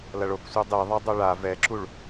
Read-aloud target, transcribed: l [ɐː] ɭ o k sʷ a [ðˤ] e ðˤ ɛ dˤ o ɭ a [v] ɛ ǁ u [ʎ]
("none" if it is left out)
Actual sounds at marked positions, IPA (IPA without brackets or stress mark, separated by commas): ɐ, dˤ, v, ɭ